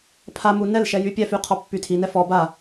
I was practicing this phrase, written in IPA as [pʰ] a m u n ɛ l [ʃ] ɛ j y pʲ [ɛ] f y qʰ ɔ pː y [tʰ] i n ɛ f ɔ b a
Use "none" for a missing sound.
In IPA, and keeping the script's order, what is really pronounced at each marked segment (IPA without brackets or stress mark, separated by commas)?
pʰ, ʃ, ɛ, tʰ